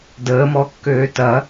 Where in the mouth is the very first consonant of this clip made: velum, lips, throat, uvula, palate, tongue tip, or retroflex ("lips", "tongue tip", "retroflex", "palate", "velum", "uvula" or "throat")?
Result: tongue tip